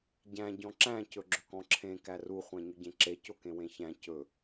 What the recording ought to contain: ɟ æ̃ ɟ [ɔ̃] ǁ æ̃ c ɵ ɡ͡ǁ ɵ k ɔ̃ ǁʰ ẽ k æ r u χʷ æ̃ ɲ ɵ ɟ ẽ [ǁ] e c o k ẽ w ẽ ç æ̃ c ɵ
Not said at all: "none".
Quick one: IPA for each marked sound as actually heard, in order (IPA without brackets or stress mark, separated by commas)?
ɔ̃, ǁ